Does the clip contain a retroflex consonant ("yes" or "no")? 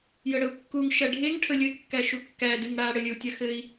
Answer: yes